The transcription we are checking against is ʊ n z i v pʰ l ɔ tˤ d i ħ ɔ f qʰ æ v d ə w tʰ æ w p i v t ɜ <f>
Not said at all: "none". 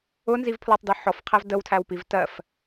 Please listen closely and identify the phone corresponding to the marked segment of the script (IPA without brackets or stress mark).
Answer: f